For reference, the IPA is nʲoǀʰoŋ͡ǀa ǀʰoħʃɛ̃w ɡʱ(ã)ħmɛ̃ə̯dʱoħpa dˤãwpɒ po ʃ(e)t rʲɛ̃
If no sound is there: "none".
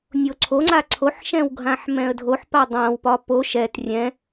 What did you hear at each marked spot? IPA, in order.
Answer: ã, ɛ

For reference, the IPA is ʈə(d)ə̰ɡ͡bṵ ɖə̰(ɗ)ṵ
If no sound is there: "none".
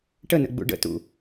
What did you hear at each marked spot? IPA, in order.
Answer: n, t

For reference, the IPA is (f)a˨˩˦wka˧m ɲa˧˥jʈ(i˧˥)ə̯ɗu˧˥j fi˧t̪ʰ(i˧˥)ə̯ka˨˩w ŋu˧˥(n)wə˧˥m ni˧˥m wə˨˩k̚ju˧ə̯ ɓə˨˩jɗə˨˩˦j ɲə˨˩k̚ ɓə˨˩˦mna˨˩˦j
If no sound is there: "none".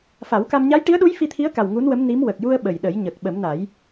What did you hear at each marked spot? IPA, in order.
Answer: f, i˧˥, i˧˥, n

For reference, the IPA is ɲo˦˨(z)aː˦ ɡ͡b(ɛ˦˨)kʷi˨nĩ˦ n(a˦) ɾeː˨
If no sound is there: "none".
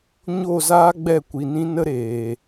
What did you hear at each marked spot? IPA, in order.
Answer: z, ɛ˦˨, ə˦

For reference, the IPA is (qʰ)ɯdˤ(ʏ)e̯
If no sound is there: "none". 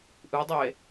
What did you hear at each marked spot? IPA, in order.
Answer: ʔ, y

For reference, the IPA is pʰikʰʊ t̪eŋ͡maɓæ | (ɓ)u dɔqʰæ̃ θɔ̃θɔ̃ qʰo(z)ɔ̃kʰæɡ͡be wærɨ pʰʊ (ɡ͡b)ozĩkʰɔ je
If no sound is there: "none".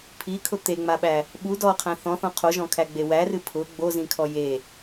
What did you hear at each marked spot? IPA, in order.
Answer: ɓ, ʒ, ɡ͡b

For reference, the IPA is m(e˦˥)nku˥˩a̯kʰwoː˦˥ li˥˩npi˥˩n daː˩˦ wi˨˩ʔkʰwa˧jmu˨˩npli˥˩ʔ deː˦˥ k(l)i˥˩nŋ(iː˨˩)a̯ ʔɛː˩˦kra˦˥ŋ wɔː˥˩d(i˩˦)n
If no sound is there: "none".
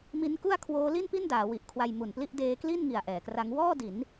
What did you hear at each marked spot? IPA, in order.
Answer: i˦˥, l, i˨˩, i˩˦

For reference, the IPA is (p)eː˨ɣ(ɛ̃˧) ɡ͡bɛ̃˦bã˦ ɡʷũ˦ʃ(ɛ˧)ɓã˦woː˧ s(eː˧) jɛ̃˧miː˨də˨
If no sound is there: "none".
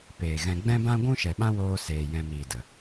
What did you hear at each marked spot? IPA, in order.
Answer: p, ɛ̃˧, ɛ˨, eː˨

